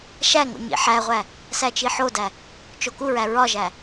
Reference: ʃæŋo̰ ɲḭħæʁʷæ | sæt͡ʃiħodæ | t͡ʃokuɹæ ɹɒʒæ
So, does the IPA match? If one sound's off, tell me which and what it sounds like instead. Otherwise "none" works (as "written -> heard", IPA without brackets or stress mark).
none